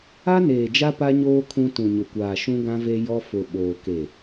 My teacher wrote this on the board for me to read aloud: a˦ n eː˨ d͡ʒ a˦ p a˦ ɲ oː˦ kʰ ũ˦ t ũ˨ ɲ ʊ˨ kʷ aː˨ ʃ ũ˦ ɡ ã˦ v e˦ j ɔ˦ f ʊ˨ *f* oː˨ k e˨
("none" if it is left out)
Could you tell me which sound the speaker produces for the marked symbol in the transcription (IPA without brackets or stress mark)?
ɓ